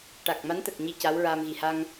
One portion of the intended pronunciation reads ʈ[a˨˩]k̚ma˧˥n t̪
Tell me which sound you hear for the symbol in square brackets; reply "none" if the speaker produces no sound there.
a˨˩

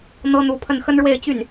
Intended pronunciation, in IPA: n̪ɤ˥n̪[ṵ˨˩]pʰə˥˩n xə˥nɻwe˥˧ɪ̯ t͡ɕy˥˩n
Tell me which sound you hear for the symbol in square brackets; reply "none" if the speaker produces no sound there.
u˧˥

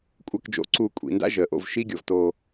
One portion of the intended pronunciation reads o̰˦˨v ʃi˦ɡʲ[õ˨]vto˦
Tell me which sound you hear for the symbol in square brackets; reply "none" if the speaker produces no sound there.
o˨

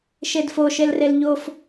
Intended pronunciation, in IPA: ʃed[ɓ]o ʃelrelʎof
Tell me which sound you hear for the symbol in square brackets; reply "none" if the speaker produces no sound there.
f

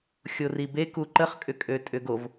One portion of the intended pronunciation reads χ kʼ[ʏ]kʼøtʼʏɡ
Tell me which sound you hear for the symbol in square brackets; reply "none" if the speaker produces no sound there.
ʏ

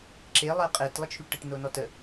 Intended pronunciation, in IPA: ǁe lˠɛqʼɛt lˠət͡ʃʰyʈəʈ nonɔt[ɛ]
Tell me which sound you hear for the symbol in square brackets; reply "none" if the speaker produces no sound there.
ə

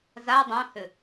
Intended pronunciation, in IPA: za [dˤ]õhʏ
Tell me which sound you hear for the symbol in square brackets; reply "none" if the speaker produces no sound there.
dˤ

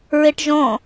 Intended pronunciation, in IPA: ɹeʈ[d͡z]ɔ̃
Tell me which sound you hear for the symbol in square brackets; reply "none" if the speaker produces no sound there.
ʒ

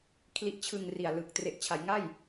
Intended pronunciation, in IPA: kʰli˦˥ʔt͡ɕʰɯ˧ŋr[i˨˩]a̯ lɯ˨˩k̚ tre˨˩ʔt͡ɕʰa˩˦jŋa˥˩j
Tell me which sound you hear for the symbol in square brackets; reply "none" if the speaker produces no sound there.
i˨˩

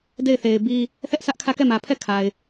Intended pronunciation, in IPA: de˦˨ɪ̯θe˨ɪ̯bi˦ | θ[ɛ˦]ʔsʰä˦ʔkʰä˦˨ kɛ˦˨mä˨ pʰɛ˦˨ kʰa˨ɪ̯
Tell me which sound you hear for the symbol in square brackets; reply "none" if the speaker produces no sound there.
ɛ˦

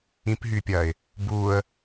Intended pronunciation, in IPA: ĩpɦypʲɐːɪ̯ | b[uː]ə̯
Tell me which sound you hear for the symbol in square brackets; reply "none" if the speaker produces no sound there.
uː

